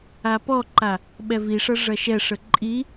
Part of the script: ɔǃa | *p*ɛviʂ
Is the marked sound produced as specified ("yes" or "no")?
no